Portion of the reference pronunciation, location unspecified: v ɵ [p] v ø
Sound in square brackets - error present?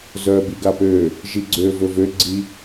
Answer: yes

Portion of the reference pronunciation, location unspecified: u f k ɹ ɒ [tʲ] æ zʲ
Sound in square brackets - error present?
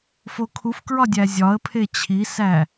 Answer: yes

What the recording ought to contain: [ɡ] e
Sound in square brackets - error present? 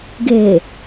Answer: no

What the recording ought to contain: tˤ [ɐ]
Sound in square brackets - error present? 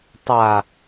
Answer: yes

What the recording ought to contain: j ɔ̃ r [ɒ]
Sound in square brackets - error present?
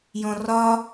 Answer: no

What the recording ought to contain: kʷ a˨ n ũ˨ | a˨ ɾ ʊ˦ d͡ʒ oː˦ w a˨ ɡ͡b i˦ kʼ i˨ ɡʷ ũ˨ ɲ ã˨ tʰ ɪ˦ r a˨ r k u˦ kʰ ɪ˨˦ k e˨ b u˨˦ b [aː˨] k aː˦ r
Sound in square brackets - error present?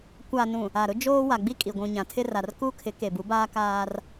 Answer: yes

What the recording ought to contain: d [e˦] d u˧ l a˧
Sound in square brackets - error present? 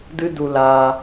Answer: yes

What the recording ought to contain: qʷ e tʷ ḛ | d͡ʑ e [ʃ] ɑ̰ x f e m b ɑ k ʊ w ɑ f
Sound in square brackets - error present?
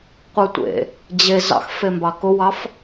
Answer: yes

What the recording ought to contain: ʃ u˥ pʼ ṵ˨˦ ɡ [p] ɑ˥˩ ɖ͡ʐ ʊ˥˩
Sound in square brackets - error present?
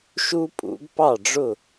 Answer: no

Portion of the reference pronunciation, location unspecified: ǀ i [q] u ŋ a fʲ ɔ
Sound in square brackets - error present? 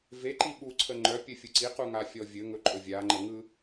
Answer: no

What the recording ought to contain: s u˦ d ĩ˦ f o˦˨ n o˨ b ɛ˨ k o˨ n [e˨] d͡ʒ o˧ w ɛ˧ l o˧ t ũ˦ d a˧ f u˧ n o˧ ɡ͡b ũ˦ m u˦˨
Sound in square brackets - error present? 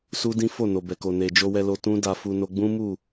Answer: no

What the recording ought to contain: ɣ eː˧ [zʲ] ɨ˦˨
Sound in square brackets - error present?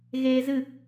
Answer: yes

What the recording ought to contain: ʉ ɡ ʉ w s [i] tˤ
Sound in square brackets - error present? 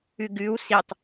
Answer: no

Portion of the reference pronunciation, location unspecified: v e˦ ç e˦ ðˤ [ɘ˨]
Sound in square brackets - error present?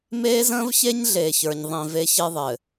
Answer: no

